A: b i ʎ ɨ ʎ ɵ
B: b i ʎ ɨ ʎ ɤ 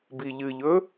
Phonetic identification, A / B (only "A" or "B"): A